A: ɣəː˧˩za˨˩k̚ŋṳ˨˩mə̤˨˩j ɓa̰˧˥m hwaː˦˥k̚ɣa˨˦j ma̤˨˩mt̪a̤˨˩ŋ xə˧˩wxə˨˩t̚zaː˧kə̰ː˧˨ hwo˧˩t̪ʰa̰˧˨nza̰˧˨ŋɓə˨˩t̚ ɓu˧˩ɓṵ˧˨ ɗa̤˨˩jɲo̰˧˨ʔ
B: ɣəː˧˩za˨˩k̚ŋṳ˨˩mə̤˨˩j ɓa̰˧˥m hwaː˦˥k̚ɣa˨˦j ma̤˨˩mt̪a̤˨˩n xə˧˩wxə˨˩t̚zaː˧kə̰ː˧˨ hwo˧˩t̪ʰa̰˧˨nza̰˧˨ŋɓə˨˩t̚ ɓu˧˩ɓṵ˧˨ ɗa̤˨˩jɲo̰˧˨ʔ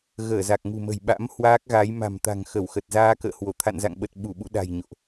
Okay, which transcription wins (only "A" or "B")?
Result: A